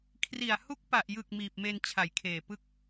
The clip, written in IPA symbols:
kʰri˨˩a̯ hu˦˥k̚ pa˨˩ʔjɯ˨˩k̚ miː˨˩p̚me˧n t͡ɕʰa˨˩jkʰeː˨˩ pɯ˥˩k̚

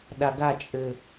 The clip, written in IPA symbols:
ɗaɡat͡ʃʼɘ

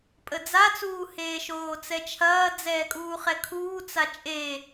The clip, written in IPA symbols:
pʼəd͡zat͡suː heːʃoːt͡sɛt͡ʃʰɐː d͡zɛːkʼuːχɛkʰuː t͡sat͡ʃʼe

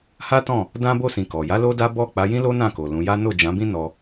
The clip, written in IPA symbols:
ha˦tɔ̃˦˨ | dã˦ bo˦˨sĩ˨ kɔ˨ ja˨˦ lo˦da˦ bɔ˦˨k͡pa˨˦jĩ˦ lo˦nã˦˨ko˨ lũ˨˦ja˦ no˦˨d͡ʒã˨˦bĩ˦ nɔ˧

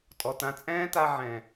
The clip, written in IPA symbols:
tʼɔ˨ tã˧ t͡sʼɛ̃ː˦ta˧ ʕɛ̃˨

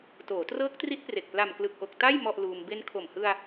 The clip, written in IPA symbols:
toː˩˦trɤː˦˥k̚tri˦˥t̚pre˨˩k̚ pla˨˩mklɯ˨˩k̚ʔo˨˩k̚ ta˥˩j mɔ˥˩ʔluː˧m be˧nkʰo˨˩mhɯ˧a̯

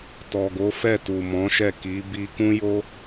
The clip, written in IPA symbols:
tɔ˨ɡo˨˦fɛ˦˨tu˨ mɔ̃˨˦ʃɛ˦˨ ki˨˦ bi˧kũ˦jo˦

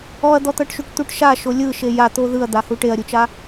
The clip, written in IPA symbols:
ɔɐ̯d̪ɔt̪ɤʈʃuʈ t̪uʈʃa ʃolʲɯ ʃejat̪o ðɯɐ̯d̪ahu ʈeɐ̯ɾʲut͡ʃa

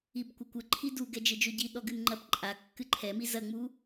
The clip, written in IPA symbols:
ibkʷɐkʷɘ ǃʰidu ɡɛd͡ʒɘd͡ʒoɟi ɗɔɡɨnŋ͡ǃɐp ǃʼa kːɨǃʰɛmi zɐŋ͡mu

